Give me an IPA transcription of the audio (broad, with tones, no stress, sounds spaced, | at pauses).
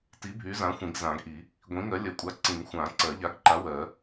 t i˨˥ bʱ y˨˥ z ã˨˥ xʷ ĩ˨˩˦ ɡ z ã˨˩˦ ɡ ʔ i˨˩˦ | ɡʷ ĩ˨˥ ŋ ɜ˨˥ lʲ ɜ˨˥ kʷʼ a˨˥ ǀ ĩ˨˩˦ ŋ xʷ ã˨˩˦ ǀ ɜ˨˩˦ ʎ a˨˥ ɡ ǃ a˨˥ w ɜ˨˩˦